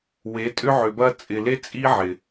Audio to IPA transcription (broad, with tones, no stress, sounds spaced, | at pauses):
w e˨˦ tʼ ʏ˦ ʕ ʏ˨ b ɐ˦ t͡sʼ ɪ˨ l e˦ t͡sʼ i˦ ʕ ɪ˨